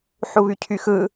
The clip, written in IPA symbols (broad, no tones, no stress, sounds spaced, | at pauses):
ħ u β y cʰ y x ɯ